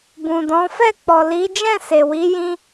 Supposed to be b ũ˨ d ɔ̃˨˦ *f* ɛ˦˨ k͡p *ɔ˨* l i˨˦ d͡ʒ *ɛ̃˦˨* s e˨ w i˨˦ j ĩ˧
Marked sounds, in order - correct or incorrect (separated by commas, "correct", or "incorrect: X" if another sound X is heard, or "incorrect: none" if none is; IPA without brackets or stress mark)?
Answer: correct, correct, correct